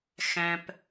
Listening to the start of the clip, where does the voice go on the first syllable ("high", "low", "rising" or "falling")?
low